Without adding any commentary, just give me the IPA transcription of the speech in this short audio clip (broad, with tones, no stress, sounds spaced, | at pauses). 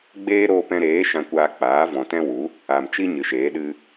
ɡ͡b eː˦ ɾ oː˧ p ɛ̃˧ ɾ eː˨˦ ʃ ã˧ kʷ aː˧ k͡p aː˨˦ v ɔ̃˨ t ɛ̃˦ w u˨˦ | a˨ m t͡ʃ i˦ ɲ ɨ˨ ʃ eː˨˦ ɗ ɨ˦